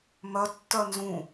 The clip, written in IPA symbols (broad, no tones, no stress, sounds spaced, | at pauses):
m œ tː œ n z ũ